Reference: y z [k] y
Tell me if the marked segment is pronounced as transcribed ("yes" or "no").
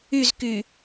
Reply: yes